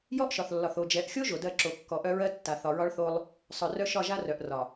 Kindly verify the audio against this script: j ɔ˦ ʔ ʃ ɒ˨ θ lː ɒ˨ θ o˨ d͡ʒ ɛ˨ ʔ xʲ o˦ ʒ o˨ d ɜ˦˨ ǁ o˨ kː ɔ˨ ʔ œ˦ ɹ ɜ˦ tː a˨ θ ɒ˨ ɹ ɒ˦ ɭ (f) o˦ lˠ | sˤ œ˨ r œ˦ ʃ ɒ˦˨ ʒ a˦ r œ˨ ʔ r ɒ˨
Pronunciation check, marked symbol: incorrect: θ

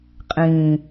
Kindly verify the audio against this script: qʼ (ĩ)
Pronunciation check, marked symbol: correct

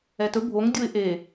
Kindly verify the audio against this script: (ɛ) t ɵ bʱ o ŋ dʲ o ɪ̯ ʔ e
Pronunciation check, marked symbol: correct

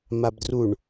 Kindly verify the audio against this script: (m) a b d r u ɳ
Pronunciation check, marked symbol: correct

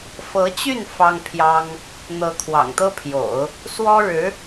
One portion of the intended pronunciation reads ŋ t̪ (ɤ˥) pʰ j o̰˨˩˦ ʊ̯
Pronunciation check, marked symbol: correct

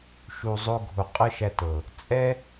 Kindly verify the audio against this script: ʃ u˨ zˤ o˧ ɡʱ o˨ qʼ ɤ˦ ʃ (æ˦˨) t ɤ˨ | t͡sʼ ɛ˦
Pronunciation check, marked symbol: incorrect: æ˧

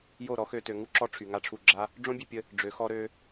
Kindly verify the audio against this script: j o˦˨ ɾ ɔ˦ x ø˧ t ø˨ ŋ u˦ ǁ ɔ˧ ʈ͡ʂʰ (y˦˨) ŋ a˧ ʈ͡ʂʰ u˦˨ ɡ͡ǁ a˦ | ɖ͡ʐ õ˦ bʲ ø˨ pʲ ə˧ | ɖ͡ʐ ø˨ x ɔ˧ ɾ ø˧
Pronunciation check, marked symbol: incorrect: y˨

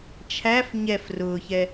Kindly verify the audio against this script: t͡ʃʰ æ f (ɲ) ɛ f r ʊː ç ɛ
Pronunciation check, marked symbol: correct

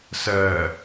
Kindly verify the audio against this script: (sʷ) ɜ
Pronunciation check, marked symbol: incorrect: s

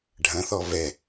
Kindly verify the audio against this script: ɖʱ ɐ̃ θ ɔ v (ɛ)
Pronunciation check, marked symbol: correct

